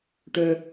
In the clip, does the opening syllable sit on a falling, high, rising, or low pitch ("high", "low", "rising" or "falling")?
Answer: low